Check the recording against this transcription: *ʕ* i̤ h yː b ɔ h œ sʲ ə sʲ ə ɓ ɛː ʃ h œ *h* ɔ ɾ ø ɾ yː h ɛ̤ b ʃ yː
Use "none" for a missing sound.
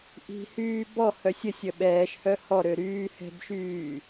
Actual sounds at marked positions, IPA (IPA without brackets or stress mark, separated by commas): ʔ, h